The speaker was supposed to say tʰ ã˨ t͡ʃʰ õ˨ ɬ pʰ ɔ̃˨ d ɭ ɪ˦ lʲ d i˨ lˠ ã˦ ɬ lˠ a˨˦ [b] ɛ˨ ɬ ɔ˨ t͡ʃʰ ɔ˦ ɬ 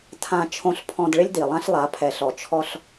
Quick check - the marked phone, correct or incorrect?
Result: incorrect